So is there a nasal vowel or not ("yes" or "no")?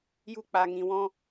yes